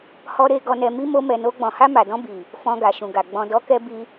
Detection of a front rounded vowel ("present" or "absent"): absent